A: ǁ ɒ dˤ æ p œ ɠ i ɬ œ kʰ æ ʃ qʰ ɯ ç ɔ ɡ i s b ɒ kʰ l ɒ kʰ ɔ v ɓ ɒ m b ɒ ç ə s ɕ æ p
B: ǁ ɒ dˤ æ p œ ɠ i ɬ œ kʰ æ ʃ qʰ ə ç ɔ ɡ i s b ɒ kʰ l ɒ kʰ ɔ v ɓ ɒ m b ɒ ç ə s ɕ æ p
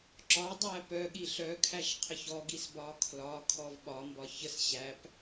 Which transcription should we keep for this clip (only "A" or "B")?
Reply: B